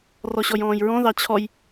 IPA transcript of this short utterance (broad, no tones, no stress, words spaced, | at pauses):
rɔɕɔjɔ̃ːjɹɔ̃ ðɑt͡ɕʰɔj